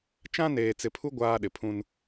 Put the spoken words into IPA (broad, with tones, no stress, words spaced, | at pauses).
t͡ʃã˦neː˨t͡sɪ˨pʰu˦ ɡʷaː˦ɗɪ˨pʰũ˦n